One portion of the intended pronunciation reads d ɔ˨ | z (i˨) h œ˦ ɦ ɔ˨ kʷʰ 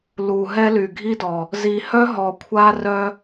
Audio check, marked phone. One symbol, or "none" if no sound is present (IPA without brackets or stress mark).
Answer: i˨